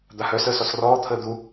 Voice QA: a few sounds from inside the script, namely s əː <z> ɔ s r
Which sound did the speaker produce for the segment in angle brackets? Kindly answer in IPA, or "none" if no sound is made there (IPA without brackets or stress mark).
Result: s